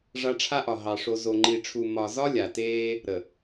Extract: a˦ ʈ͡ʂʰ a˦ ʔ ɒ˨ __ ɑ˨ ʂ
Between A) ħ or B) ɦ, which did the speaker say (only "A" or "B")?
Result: B